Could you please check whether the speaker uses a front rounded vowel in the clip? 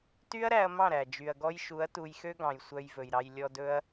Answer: yes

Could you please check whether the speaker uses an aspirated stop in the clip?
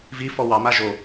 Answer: no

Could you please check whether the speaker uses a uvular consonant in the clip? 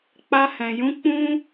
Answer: no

